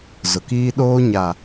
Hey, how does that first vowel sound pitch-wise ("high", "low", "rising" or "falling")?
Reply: low